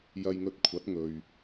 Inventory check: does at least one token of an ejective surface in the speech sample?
no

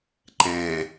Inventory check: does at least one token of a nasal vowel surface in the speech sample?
yes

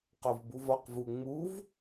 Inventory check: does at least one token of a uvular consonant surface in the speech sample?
yes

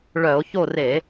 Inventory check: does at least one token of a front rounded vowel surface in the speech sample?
yes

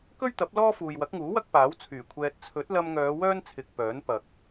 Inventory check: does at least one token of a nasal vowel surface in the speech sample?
no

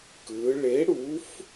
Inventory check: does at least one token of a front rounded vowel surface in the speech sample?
no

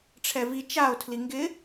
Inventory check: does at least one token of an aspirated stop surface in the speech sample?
yes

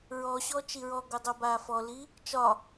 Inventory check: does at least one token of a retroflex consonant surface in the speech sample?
no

